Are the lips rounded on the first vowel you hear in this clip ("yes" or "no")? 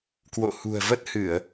yes